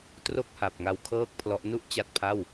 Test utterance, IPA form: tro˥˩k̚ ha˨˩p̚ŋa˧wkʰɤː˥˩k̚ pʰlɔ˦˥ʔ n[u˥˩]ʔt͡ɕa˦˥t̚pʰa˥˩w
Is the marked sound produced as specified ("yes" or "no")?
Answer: yes